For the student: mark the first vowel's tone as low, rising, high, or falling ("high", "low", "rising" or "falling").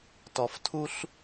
low